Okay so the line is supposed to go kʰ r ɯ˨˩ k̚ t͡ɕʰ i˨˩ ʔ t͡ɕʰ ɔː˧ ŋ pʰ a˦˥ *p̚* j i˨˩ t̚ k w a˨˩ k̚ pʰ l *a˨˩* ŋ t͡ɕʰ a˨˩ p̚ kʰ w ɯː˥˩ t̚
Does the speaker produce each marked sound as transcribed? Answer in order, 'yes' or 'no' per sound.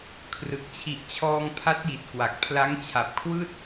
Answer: no, no

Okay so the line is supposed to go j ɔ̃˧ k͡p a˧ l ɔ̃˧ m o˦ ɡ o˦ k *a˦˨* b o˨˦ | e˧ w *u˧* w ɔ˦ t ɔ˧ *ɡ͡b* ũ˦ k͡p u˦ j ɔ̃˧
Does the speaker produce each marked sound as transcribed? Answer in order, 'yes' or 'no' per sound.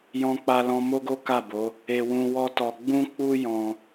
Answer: yes, no, yes

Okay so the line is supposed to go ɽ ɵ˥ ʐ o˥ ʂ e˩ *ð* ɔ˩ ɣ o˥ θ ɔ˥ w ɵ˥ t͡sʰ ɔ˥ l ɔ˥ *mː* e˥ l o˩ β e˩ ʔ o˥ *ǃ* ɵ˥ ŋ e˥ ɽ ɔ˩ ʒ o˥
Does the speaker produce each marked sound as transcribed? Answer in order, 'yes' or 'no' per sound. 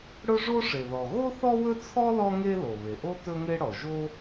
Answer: yes, no, no

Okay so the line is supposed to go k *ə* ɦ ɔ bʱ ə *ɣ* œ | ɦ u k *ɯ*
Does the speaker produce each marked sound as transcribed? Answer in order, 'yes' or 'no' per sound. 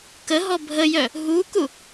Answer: yes, no, no

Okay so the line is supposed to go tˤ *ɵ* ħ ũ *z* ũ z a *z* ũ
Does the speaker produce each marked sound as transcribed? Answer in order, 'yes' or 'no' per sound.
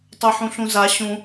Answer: no, no, no

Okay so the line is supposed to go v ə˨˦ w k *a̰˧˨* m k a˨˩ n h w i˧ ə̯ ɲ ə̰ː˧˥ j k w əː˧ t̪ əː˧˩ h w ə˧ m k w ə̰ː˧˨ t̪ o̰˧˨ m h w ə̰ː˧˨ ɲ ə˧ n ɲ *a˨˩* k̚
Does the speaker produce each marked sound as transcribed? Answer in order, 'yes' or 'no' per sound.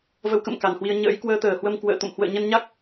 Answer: no, no

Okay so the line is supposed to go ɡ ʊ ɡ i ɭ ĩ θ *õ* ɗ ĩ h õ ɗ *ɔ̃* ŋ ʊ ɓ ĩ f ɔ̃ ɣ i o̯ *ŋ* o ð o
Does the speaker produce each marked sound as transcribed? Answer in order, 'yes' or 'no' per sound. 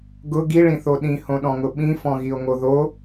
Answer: no, yes, yes

